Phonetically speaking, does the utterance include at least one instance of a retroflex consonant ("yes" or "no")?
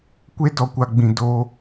no